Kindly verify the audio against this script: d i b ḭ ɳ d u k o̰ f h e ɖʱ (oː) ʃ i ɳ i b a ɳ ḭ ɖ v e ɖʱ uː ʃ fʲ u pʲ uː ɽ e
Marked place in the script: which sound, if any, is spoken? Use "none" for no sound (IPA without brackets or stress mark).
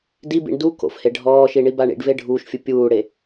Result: ɔː